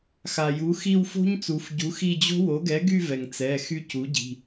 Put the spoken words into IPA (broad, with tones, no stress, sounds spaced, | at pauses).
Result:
x a˩ j u˩˥ x i˦˨ w f o̤˦˥ ɲ t͡s u˩˧ f ɟ u˩˥ x i˦˨ d͡ʑ o̤˦˥ w o˩˥ ɡ ɛ˩˥ ɡ y˦˨ v ɛ˩ ŋ t͡s ɛ˩˧˩ x y˦˨ c u˩˥ ɟ i̤˩˧˩